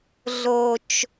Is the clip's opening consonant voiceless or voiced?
voiced